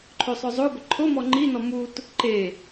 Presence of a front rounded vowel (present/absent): present